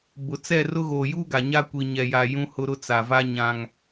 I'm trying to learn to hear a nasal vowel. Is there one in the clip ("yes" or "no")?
yes